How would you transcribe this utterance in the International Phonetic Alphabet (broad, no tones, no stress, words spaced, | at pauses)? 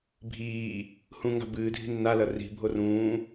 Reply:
bʱiː | hũŋa̤ bɨːdʱi̤ nːalɐ ri̤bʱo rũː